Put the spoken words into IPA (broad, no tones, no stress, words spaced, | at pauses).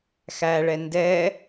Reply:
xæɭɛ ndɛ